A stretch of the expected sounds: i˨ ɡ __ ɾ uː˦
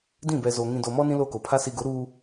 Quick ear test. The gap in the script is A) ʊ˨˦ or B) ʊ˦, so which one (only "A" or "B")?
A